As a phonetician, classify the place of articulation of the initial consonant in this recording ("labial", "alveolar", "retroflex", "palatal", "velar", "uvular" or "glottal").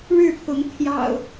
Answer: retroflex